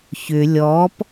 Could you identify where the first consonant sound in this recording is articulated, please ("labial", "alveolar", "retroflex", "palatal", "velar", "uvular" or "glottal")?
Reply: palatal